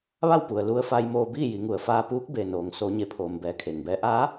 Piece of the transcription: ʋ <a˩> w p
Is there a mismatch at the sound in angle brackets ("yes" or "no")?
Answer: yes